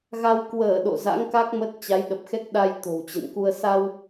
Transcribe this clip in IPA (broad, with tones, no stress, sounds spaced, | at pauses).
ɣ a˧ w k w əː˧˩ ɗ o̰˧˨ z a̰˧˥ ŋ k a˦˥ k̚ m ə˦˥ t̚ t͡ɕ a˨˦ j ɗ ə˨˩ p̚ x ɛ˦˥ k̚ ɗ a˧ j t̪ o̤˨˩ w t͡ɕ ə̰˧˨ n k u˧ ə̯ s a˧ w